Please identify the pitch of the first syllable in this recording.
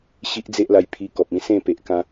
high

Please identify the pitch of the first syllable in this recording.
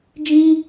high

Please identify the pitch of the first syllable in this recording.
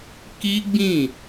high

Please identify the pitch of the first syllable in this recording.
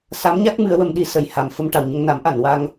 rising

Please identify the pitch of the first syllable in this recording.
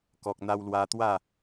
low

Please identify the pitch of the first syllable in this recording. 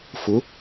rising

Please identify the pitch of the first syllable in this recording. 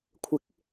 rising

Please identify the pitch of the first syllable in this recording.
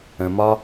low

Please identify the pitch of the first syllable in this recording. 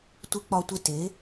rising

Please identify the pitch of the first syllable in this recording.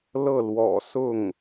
falling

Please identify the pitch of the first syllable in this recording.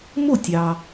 falling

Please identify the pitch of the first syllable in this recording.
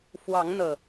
rising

